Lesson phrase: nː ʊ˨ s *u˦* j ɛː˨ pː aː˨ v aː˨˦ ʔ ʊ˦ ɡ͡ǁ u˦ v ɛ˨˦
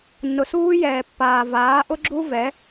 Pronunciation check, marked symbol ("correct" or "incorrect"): incorrect